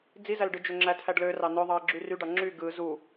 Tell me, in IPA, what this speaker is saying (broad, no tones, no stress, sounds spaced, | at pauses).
d͡z i z æ l ɖ ɯ d͡ʒ ø ŋ͡ǁ æ tʰ æ ɖ l ø r ɑ n ø ðˤ ɑ ə̯ ɡ͡ǁ y r y ɖ ɑ ŋ͡ǁ y ɡ ɯ z u